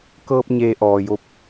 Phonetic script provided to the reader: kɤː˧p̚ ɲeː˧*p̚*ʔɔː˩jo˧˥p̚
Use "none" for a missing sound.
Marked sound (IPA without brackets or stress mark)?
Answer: none